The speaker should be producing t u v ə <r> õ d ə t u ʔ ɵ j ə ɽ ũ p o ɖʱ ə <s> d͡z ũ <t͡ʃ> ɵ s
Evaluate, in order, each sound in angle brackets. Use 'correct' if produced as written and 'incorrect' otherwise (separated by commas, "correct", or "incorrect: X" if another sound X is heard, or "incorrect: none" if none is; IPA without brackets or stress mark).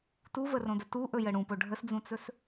correct, correct, incorrect: t͡s